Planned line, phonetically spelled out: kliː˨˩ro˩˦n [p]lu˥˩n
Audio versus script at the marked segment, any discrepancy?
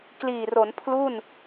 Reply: yes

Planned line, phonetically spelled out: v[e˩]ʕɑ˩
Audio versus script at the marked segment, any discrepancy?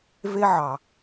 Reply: yes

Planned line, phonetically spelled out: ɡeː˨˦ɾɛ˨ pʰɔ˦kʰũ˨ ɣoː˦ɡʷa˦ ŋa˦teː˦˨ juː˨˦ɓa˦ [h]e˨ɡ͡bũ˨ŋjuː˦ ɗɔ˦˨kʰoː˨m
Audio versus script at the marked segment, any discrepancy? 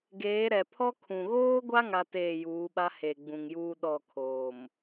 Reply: no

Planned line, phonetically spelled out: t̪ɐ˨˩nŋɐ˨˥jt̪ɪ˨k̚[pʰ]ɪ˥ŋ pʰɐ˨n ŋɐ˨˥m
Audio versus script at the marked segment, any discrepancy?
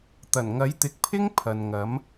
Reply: no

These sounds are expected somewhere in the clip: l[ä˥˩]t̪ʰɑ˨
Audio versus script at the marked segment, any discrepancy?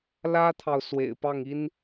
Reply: yes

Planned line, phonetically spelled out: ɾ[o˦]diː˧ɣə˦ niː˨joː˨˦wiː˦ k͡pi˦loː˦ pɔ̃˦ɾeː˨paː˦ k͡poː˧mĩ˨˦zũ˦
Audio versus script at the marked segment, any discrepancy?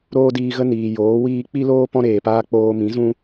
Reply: yes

